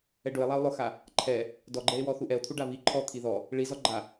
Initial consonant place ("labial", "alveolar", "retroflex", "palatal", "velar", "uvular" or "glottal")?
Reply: retroflex